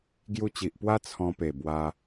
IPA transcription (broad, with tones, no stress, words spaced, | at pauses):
ɡju˧t͡ɕi˨ʔpwa˦ t͡sʰɔ̃˧pe˨˩ bwa˧